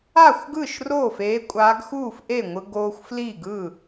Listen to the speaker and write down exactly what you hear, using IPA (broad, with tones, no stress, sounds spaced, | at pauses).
a˥˩ xʷ ɡ ɯ˥˩ ʃ r oː˥˩ f eː˧˥ kʷʼ a˧˥ ɡ x uː˥˩ f ʔ e˥˩ ŋʷ ɯ˧ ɡ oː˧ xʷ f l i˥˩ ɡ ɯ˥˩